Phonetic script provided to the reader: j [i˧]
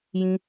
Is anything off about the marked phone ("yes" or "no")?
yes